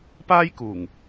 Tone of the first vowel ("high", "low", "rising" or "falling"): high